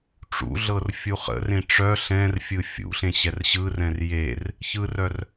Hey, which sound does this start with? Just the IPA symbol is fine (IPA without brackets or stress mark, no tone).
ʈ͡ʂ